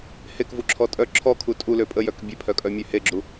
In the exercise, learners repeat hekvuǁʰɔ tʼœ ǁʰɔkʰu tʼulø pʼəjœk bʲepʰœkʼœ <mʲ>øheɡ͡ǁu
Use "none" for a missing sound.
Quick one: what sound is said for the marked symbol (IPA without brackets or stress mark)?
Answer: mʲ